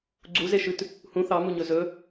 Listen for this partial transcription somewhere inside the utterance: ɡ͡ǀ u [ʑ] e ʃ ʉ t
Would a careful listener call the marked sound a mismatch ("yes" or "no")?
yes